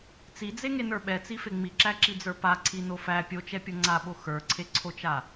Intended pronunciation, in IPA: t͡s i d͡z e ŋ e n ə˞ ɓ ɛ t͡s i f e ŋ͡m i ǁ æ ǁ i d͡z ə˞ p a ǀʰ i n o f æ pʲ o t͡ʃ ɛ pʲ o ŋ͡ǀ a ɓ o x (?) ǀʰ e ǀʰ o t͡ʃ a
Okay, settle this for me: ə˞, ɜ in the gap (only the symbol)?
ə˞